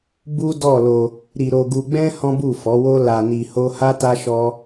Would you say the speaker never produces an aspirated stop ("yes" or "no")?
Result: yes